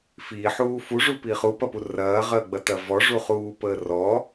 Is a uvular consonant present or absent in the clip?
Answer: present